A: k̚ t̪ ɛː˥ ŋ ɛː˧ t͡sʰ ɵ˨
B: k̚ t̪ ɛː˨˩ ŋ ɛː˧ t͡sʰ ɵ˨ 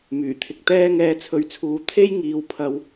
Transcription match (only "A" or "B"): A